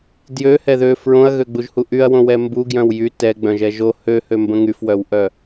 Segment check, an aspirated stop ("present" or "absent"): absent